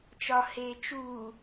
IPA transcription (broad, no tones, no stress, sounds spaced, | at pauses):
t͡ʃ ɒ h eː t͡ʃ u